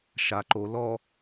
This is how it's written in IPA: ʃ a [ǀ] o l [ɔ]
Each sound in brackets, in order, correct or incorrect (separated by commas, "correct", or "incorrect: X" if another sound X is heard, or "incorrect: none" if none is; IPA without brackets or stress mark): incorrect: ǃ, correct